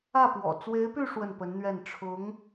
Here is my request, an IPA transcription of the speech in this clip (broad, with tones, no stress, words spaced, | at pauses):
ä˥˩pwɔ̰˨˩ t͡swe˧˥ɪ̯py˥˧ ʂwə˥˩npə˧˥nn̪ɥɛ˥˩n ʈ͡ʂʰʊ˧˥ŋ